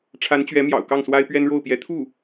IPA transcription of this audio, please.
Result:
ʈ͡ʂʰ a˧˥ n t͡ɕ ɥ ɛ˧˥ m j ɑ̰˨˩ ʊ̯ k ɑ˥˩ ŋ s w a˥ ɪ̯ p ɥ ɛ˥ n ɻ o˥˩ ʊ̯ p j ɛ˧˥ t̪ʰ u˥˩

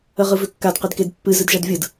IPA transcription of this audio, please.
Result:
ə ʁ ɯ v ʏ kː a d q e d k e d pː ɨ z ɨ d ʒ a d vʲ ɯ d

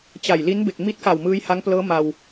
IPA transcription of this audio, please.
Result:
t͡ɕ a˨˩ j l i˦˥ n b e˨˩ k̚ m i˦˥ t̚ k a˨˩ w m ɯː˦˥ j h a˦˥ ŋ p l ɤː˦˥ m a˧ w

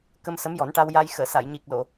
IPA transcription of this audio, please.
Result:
k ə˧ m s ə˧˥ m j ɔ˨˩˦ n ʈ a˧ w j a˧ j x əː˨˩˨ s a˨˩˨ j ɲ i˨˩ k̚ l o˨˩˨

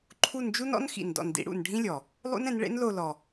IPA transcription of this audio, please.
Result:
ǃʰ u˦˨ n d͡ʒ u˦˥ n ɔ̰˦˥ n x ḭ˨˩ n d ɔ̰˨˩ n d ḭ˨˦ ɽ ṵ˨˩ n ɖʱ ĩ˦˥ lʲ ɔ˨˩ | lˠ ṵ˦˥ n ɛ̃˨˦ n ɭ ḛ˦˥ n l o˦˨ l ɔ˨˩

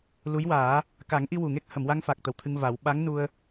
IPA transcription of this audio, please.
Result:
l u˧˥ j w aː˨˩˦ | k a˨˩˦ ŋ ʔ i˧ w u˨˩ ŋ e˦˥ k̚ h ə˨˩˨ m w a˧ ŋ f a˨˩ k̚ t̪ ə˨˩ w t̪ʰ ɨ˧ ŋ v a˨˩˦ w ɓ a˧˥ ŋ n u˧ ə̯

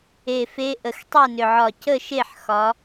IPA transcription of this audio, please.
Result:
e˨˩ f e˨˦ ʔ ə˨˩ x tˤ ɛ˥˩ n ʏ˨˩ ʕ ɒ˨˩ c ə˥˩ ʃ e˥˩ ħ x ɒ˨˦

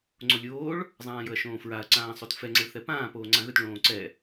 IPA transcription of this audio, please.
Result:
ŋ͡ǀ o lʲ oː ɭ | zˤ ãː j ɵ ɐ̯ ʃ õː f ɹ a ɐ̯ ǀ ãː sˤ o t f ɛ ŋ͡ǀ ə ɭ θ ɛ p ãː p oː ŋ͡ǀ ã ɣ ɵ t ɭ õː ǀ ɛ

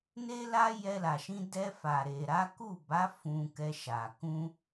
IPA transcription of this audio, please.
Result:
n e˦ l a˦ j ɛ˧ l a˨ ʃ ĩ˧ d ɛ˧ f a˨ ɾ e˨ ɾ a˨˦ k u˦˨ b a˨˦ f ũ˧ k ɛ˧ ʃ a˨ k ũ˧

